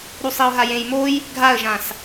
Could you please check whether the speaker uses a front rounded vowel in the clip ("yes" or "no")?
no